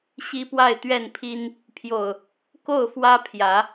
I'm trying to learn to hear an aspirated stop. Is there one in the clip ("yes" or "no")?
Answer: yes